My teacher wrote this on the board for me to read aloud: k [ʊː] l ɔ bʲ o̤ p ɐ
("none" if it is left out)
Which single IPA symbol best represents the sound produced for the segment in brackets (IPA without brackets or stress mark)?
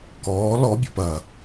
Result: ɔː